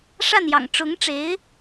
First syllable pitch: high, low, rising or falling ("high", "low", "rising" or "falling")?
falling